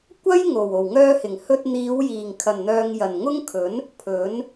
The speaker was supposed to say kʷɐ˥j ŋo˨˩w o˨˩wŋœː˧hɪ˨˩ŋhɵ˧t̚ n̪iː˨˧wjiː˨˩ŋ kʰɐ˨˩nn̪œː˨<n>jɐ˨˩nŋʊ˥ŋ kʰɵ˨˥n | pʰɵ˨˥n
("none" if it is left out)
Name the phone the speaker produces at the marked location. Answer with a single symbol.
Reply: ŋ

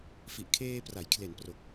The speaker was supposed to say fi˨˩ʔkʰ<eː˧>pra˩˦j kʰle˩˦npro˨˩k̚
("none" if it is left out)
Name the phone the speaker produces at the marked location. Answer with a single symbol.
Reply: eː˧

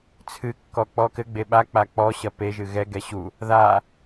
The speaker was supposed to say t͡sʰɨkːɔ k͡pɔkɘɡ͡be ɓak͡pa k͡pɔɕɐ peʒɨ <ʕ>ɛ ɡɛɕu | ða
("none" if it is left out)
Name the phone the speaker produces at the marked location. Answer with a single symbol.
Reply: ɣ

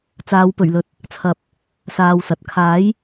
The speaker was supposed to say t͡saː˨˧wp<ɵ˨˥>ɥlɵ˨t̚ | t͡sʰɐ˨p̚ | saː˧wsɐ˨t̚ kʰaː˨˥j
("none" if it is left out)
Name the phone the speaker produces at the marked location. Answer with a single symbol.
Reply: ɵ˨˩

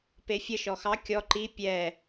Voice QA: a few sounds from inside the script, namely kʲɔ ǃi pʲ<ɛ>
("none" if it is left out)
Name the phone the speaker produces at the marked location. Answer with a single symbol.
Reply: ɛ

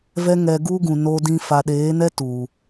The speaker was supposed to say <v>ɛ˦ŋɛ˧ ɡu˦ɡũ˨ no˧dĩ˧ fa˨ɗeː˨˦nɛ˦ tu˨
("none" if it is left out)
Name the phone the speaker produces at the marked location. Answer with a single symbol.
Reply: v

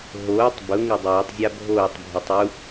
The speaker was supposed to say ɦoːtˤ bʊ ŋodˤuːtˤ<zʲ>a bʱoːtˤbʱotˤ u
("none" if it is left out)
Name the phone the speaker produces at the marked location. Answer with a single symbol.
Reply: zʲ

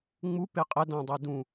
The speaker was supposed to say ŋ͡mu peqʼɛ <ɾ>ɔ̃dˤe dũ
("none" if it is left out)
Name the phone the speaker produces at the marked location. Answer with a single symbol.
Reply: d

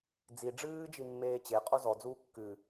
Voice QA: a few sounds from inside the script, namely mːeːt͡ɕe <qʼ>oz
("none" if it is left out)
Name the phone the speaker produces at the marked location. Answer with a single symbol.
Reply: qʼ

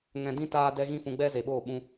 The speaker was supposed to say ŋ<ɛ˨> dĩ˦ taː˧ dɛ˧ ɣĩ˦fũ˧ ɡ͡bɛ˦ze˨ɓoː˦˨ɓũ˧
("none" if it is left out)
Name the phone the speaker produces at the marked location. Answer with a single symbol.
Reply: ɛ̃˨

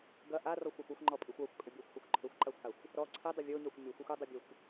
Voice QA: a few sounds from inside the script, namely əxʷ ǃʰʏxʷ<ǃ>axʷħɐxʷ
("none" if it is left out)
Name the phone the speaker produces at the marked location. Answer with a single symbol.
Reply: ǃ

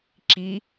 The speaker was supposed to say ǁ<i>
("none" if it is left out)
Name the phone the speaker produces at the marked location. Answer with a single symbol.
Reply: i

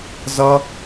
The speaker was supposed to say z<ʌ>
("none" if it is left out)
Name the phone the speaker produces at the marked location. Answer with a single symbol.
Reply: ʌ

